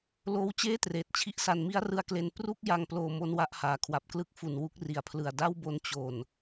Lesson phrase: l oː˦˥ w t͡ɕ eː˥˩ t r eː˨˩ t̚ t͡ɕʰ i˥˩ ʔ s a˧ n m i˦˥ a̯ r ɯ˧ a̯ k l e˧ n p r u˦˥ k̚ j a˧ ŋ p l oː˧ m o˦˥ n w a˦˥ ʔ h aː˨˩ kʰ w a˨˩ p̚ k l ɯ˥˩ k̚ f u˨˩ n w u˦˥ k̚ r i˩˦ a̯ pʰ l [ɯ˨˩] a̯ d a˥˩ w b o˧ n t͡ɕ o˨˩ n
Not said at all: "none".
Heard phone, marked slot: ɯ˨˩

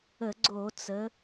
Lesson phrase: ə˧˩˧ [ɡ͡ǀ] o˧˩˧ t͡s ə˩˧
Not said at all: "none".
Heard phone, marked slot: ɡ͡ǀ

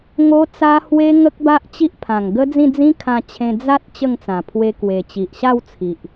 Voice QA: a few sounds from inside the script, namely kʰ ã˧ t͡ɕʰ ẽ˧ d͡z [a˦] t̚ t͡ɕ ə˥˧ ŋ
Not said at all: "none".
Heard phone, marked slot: a˦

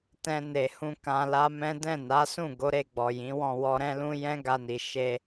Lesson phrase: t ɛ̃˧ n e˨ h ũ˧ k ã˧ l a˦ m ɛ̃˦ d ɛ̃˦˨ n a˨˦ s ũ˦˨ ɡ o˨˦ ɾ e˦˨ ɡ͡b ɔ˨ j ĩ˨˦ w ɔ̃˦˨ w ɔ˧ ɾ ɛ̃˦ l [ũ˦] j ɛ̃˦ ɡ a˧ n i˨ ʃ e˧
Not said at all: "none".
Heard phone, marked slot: ũ˦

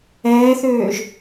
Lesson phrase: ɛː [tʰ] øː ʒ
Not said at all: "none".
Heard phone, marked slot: θ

